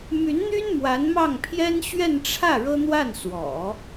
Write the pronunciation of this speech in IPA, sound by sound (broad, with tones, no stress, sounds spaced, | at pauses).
m y˧˥ n n̪ y˥ n m w a˧˥ n m ɑ˥˩ ŋ pʰ j ɛ˥ n ɕ ɥ ɛ˥˧ n ʈ͡ʂʰ ä˥˩ ɻ ɤ˥ n̪ w a˥˩ n s w ɔ̰˨˩˦